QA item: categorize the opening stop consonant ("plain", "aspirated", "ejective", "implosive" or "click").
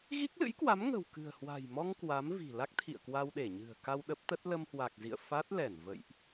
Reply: plain